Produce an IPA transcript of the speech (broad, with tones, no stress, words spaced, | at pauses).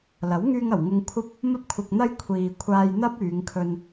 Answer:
lɐ˨˥wŋyː˧ŋɐ˨˩w ŋʊ˧ŋkʷʰɐ˥p̚ | mɐ˧p̚kʷʰɪ˨k̚n̪ɐ˧j kʷʰiː˨ kʷʰaː˧j n̪ɐ˥p̚ yː˨˧ŋkʰɵ˧n